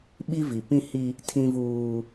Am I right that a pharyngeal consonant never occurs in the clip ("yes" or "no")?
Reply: yes